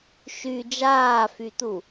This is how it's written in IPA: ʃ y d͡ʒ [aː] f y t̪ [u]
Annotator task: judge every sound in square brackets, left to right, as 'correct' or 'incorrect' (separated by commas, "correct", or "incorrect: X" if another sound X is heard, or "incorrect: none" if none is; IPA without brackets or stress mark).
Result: correct, correct